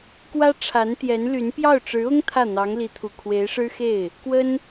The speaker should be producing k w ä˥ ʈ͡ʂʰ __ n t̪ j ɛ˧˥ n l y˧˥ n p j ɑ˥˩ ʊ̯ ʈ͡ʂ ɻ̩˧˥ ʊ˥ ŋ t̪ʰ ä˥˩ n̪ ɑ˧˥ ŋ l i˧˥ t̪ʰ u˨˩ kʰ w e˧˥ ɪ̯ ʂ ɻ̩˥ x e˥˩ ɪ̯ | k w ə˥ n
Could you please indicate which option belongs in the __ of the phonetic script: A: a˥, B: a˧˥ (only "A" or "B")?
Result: B